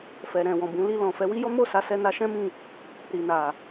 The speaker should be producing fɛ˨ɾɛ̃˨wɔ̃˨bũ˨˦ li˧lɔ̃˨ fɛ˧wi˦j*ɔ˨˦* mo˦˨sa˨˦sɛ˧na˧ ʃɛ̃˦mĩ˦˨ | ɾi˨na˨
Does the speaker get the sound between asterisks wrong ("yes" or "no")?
yes